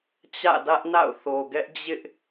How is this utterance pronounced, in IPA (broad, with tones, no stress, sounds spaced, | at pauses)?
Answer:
t͡ɕ ä̰˦˨ d ä˦ ʔ n a̰˦˨ ʊ̯ θ o˨ ɡ ɛ˦ ʔ d͡ʑ ɪ˦ ʔ